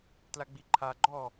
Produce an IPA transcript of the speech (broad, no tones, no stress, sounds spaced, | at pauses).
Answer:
t l a ɡ͡b i ǃʰ a ɡ͡ǃ ɔ